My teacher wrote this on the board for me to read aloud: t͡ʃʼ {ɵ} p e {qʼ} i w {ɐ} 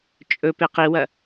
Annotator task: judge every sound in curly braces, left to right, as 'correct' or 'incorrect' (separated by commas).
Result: correct, incorrect, correct